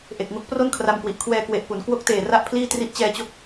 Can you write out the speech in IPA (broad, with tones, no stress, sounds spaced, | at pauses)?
ʔ e˨˩ k̚ ŋ o˦˥ k̚ p r o˥˩ n kʰ r a˧ m k w i˨˩ ʔ kʰ w ɛː˧ k w e˨˩ ʔ p u˩˦ n k w o˦˥ k̚ t eː˨˩ r a˥˩ ʔ pʰ l iː˥˩ t r i˥˩ ʔ t͡ɕ ɛː˧ t͡ɕ o˦˥ k̚